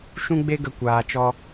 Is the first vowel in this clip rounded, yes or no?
yes